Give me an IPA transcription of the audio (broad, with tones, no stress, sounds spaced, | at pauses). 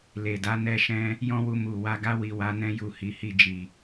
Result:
l e˨ d a˧ n ɛ˧ ʃ ɛ̃˧ | j ɔ̃˦ w u˧ m u˨ w a˧ ɡ a˧ w i˨ w a˨˦ n ɛ̃˧ j u˨ h i˨˦ h i˦˨ d͡ʒ i˨